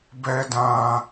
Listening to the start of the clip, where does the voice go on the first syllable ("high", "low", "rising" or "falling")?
high